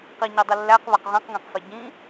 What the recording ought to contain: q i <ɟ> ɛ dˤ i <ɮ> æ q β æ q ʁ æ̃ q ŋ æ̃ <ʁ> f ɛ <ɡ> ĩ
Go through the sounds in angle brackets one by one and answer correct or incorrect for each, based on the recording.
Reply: incorrect, incorrect, incorrect, incorrect

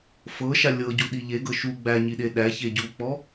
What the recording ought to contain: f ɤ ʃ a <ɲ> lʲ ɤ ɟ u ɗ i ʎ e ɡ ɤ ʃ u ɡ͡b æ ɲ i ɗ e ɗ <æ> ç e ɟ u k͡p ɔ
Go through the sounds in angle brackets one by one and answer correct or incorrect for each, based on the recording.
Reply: incorrect, correct

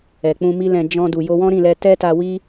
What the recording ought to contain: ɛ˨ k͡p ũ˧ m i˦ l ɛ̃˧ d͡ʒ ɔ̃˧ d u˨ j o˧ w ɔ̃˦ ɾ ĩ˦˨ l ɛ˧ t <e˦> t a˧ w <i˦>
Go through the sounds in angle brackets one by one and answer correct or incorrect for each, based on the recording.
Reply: incorrect, correct

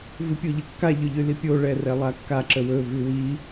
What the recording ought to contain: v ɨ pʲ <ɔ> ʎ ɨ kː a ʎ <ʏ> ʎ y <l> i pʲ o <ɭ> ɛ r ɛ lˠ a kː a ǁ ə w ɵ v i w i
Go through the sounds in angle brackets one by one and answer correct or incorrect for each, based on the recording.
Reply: incorrect, correct, correct, correct

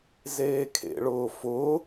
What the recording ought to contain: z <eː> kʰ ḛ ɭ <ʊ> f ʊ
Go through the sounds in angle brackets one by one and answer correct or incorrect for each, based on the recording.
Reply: correct, incorrect

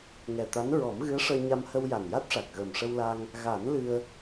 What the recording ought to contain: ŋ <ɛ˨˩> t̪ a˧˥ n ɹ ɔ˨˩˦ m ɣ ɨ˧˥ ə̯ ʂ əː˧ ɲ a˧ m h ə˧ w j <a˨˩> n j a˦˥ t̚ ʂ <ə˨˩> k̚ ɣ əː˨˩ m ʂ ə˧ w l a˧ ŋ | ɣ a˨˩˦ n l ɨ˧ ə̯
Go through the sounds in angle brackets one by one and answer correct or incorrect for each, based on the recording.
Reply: correct, correct, incorrect

